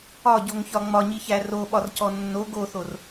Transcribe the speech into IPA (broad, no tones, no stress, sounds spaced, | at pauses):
ɒ ɟ o ŋ ç ɒ ŋ͡m ɒ ɲ i ç æ r o ɓ ɒ r c ɔ nː o ɡ o θ o r